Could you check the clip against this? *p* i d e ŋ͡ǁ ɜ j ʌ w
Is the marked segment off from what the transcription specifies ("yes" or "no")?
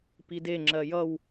no